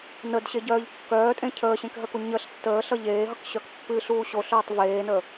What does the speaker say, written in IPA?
n ə d ɕ e ɟ œː ʎ kː œː tʼ ẽ cʰ əː ɕ ẽ k ɦ ə k u ɲ ə ɬ tː əː ɬ ʌ ʎ eː ɦ ʌ k ɕ œ k pː ɨ ɬ uː ɕ o ɬ œː tˤ v eː n əː

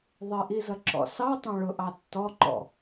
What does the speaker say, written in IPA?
ðˤ ɪ ʔ i z ʌ ǁ ɔ̰ s ɑ tˤ ɑ̃ ɭ ʊ ʔ ɑ tː ɔ ǃ ɔ̰

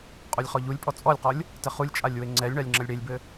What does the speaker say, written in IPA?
qʼ o lʲ χ ɔ ʎ u lʲ pʼ ɔ t͡sʼ ɔ lʲ q ɔ lʲ | t ɘ χ u lʲ t͡ʃʼ a lʲ w e ŋ͡ǀ ɛ lʲ ɳ a lʲ ŋ͡ǁ ɐ lʲ ɽ e lʲ b ɘ

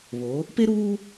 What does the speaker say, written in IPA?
β o˨˦ | p e˦ ɾ uː˦

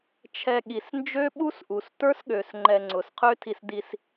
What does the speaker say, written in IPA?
t͡ʃʰ ɛ˧ ɠ i˨ s n d͡ʒ ø˦ ɓ u˦ s ʔ u˨ s t ə˞˦ s ɠ ø˨ s ŋ͡ǃ ɛ˧ ŋ͡ǀ ʊ˨ s qʰ ø˦ tʰ i˧ s d i˧ s

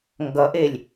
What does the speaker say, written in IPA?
ŋ ɡ ʌ ʔ e lʲ

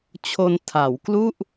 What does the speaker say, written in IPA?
t͡ɕʰ o˧ n tʰ a˩˦ w k l u˥˩ ʔ

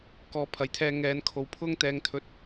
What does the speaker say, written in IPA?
k ɔː˧ pʰ ɐ˨˧ j t̪ʰ ɛː˧ ŋ ɛː˨˧ n kʰ o˨ w pʰ ʊ˥ ŋ t̪ ɛː˧ ŋ t̪ʰ ɵ˨˥ t̚

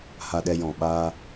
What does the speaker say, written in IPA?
h a˧ ɗ ɛ˧ j ɔ̃˨ ɓ aː˧

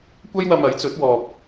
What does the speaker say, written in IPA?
kʷ ɐ˥ j w ɐ˧ m ɐ˨˥ j t͡s ɵ˨˥ t̚ w ɔː˧ p̚

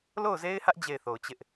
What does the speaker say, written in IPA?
l o˦˨ ʊ̯ z e˦ ɪ̯ h ä˦ ʔ d͡ʑ e˦˨ ɪ̯ θ o˨ ʊ̯ t͡ɕ ɪ˦ ʔ

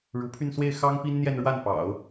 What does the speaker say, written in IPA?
ɻ u˧˥ pʰ y˥˧ n s w e˥˩ ɪ̯ x ɑ˥ ŋ p i˥ n n̪ j ɛ˥˧ n ɻ w a˥˩ n p ɑ̰˨˩˦ ʊ̯

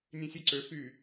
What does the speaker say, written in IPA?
nʲ ẽ sʲ e ǀ ø f y

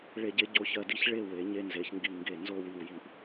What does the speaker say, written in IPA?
ɭ e˧˩ ɟ e˧ ɟ o˧ ç ɜ˧˩ d i˥˧ ç ɭ e˥˧ w e˩˧ ɲ e˧ n z e˩˧ ç ŋ ɡ i˧˩ ŋ ɡ e˧˩ n z o˥˧ w i˧˩ w j i˧˩ ʔ

